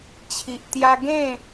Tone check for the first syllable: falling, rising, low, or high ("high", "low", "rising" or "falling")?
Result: low